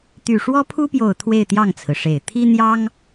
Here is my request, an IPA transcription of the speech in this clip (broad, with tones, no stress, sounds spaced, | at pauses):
t̪ y˨˩ ʂ w ɔ˥ pʰ u˥ p j o˨˩ ʊ̯ t̪ʰ w e˥˧ ɪ̯ t̪ j ɑ˥˩ ŋ t͡sʰ ɹ̩˩ ʂ e˨˩ ɪ̯ t̪ʰ i˥ n̪ j ɑ˥ ŋ